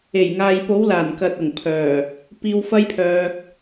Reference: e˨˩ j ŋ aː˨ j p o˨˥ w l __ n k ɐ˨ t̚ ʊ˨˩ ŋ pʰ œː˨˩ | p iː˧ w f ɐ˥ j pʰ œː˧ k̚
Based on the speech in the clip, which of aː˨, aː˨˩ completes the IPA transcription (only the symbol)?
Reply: aː˨˩